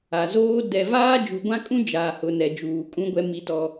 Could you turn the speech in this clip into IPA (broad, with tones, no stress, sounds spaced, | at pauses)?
a˨ z oː˦ d ɛ˨ v aː˦ d͡ʒ u˨ ɡʷ ã˦ kʼ ũ˦ d͡ʒ a˨ h ʊ˨ n ɛ˨ d͡ʒ uː˨ kʼ ũ˦ ɡʷ ɛ˦ m i˦ t ɔ˦